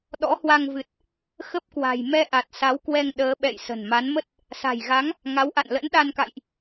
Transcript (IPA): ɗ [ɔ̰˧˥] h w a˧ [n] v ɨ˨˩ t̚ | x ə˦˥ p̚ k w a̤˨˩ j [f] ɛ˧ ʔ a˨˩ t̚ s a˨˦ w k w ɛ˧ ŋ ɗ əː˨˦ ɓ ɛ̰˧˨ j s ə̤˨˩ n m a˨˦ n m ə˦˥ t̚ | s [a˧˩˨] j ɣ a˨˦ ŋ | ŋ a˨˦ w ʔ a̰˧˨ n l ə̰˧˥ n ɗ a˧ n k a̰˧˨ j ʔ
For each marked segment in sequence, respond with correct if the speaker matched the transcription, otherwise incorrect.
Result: correct, incorrect, incorrect, incorrect

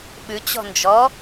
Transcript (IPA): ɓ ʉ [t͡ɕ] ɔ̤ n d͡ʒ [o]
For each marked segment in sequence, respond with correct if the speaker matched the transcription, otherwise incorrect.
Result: correct, incorrect

